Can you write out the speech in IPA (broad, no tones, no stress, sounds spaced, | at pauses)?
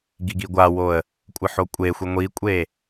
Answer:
ɡ i ɡ i ɡʷ a w o ə̯ | kʷʼ ɨ ħ o kʷʼ e xʷ i ŋʷ i kʷʼ e